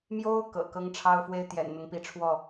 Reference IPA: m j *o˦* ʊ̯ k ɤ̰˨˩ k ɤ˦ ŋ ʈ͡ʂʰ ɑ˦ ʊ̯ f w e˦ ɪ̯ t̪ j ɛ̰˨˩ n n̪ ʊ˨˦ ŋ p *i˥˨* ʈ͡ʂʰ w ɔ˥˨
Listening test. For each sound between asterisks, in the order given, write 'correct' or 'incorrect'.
correct, incorrect

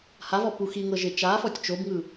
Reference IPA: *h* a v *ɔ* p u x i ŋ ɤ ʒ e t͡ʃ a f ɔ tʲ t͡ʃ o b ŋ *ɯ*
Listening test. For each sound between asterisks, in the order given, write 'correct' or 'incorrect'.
correct, correct, correct

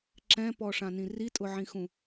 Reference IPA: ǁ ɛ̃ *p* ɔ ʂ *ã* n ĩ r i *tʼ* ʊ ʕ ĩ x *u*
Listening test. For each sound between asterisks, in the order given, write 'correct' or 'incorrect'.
correct, correct, correct, incorrect

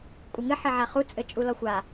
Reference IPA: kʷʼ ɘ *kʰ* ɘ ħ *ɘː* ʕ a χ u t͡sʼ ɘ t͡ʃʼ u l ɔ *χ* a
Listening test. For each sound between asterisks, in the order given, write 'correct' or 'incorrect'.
incorrect, incorrect, incorrect

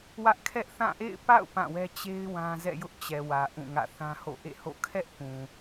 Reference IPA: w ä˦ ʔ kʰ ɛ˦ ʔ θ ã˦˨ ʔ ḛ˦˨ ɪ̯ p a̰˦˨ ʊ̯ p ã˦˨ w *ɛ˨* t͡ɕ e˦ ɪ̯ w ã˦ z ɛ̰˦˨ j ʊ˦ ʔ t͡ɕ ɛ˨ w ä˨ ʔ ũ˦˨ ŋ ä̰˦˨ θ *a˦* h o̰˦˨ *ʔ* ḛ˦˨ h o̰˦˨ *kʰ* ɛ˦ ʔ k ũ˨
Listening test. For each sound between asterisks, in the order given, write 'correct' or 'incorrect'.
incorrect, incorrect, correct, correct

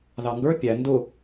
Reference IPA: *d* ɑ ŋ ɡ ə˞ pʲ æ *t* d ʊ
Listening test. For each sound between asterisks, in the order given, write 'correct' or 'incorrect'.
incorrect, incorrect

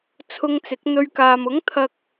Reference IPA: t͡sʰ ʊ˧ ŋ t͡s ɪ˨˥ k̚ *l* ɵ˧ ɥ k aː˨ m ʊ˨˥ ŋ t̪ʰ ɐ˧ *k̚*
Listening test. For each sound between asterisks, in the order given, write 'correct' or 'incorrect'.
incorrect, correct

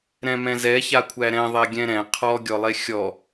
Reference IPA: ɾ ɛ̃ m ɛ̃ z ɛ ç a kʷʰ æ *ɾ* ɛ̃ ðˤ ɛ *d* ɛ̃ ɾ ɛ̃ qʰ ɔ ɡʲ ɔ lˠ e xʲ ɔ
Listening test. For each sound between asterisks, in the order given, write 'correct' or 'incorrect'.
correct, incorrect

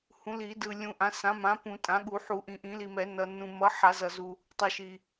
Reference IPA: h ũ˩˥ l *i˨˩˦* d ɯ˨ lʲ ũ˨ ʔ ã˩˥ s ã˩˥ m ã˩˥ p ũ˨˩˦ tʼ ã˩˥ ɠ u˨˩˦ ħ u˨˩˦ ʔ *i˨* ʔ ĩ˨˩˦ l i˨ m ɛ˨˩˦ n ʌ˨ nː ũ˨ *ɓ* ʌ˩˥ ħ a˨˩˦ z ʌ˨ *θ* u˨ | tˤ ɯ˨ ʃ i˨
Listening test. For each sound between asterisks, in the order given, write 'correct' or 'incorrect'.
correct, incorrect, incorrect, incorrect

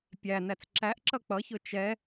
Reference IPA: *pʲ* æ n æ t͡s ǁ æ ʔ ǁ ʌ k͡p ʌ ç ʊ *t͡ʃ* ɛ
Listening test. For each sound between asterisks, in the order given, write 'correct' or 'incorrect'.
correct, correct

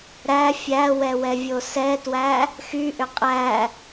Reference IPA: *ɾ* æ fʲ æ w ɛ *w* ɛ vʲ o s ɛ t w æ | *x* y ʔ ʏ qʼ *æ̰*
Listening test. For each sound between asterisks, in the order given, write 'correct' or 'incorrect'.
correct, correct, correct, incorrect

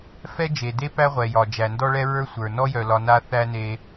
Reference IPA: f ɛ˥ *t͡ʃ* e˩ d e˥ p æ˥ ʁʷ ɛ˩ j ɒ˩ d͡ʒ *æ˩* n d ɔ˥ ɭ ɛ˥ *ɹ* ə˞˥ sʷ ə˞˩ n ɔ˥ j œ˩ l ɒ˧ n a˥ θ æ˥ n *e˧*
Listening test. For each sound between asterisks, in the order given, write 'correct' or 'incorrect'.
incorrect, correct, correct, correct

